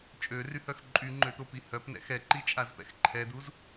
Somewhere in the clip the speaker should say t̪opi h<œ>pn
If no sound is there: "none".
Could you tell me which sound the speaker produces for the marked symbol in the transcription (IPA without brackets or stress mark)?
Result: œ